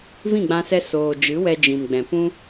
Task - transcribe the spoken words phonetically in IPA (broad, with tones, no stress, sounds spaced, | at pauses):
v ĩ˦˨ ɡ͡b ã˧ s ɛ˧ s oː˨ d͡ʒ ɨ˨˦ w ɛ˧ d͡ʒ ĩ˨ m ɡ͡b ɛ̃˨ p ũ˦